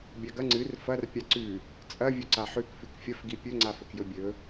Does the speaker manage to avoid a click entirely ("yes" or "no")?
no